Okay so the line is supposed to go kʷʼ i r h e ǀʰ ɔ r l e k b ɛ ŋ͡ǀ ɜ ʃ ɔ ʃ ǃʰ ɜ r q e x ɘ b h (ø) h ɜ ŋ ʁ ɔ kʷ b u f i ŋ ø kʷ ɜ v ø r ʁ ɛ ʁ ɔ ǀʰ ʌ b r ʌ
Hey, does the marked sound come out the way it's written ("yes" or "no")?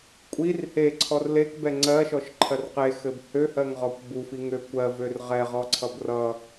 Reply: yes